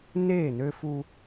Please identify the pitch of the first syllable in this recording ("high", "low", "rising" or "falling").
falling